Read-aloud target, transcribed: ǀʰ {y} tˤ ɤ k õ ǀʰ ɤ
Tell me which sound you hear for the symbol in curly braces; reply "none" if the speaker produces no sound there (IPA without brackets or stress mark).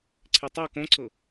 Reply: e